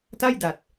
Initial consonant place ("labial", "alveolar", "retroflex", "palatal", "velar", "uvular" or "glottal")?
alveolar